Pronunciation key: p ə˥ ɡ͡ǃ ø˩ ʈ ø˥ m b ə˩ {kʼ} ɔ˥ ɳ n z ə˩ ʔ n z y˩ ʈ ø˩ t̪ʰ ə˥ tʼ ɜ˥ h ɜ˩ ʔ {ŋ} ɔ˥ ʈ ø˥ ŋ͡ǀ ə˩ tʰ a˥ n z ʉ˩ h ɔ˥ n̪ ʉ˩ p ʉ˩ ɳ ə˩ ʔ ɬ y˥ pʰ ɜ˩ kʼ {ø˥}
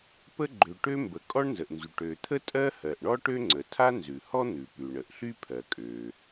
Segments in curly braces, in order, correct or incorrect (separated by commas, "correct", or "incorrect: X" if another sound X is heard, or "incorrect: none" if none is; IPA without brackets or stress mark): correct, incorrect: ɳ, incorrect: ø˩